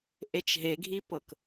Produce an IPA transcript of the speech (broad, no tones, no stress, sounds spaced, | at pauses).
ʔ e t͡ʃ ɦ e ɡʱ i p ɤ k